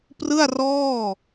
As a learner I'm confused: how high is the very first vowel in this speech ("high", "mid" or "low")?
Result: high